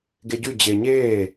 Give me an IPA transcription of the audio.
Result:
ɡ e ɟ ʉ d͡ʑ e ɲ eː

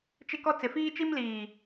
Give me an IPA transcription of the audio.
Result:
t͡ʃ ɪ˦ k ɔ˦ t͡s ɪ˨ f iː˦ t͡ʃ i˦ m l iː˨

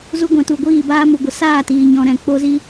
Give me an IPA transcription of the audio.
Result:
z u˧ ɡʷ ɛ̃˨ t u˨ ɡʷ iː˦˨ b aː˦ m u˨ ɡʷ ə˨ s aː˦˨ t iː˨ ɲ ɔ̃˧ ɾ ɛ̃˧ k͡p o˦ z i˦

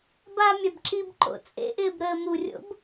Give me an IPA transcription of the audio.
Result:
b a mʲ a b ǁ i b ǃ o̰ t͡sʼ ḛ ʔ ɪː b ɾ əː m u rʲ o̰ b

